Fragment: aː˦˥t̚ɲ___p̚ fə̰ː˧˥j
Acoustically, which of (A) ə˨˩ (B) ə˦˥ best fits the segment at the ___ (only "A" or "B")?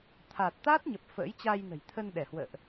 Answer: A